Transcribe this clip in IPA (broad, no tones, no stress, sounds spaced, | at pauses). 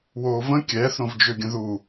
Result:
w oː v ə̃ kʲ ɛː θ ɾ õ v d͡ʒ ø ɡʲ ə̃ ð u